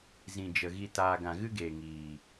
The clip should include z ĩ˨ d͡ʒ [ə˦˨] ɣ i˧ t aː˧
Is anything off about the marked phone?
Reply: yes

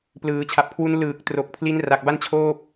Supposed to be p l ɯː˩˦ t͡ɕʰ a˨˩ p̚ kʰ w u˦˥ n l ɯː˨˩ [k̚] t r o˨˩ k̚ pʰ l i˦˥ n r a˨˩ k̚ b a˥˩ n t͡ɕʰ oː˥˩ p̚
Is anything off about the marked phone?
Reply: no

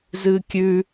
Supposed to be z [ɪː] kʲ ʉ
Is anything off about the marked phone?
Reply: yes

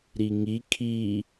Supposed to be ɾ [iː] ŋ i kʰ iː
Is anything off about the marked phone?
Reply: yes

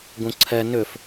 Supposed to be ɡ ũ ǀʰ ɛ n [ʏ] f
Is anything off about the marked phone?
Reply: no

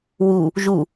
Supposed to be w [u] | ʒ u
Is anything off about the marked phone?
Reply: no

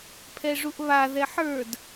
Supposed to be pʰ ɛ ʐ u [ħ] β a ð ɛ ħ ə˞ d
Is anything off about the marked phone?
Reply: yes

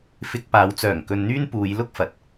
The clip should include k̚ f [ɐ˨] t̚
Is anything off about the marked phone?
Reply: no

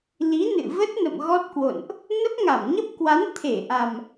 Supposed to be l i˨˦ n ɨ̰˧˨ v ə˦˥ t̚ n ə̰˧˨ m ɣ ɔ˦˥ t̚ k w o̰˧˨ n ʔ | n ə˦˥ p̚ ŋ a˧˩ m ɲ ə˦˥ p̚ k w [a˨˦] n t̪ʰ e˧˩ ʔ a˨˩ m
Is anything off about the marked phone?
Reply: no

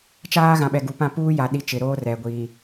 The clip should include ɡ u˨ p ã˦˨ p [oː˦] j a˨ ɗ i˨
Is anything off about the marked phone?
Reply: yes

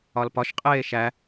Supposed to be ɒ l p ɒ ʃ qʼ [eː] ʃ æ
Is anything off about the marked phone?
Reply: no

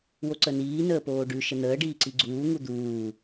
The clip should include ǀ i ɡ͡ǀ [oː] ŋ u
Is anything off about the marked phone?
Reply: yes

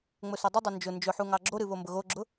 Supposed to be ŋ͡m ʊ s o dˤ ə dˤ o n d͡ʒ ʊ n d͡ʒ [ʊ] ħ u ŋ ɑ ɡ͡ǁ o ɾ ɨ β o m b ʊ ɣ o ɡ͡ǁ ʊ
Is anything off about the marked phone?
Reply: no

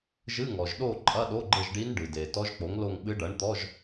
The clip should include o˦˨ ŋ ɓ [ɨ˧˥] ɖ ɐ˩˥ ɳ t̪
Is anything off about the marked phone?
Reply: no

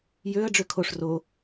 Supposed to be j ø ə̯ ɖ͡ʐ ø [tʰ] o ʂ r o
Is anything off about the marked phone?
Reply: yes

